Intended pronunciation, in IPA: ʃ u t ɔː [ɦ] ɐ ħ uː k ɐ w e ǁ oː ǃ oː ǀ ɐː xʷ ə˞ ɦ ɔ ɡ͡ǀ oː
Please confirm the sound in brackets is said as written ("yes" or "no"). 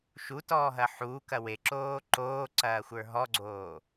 yes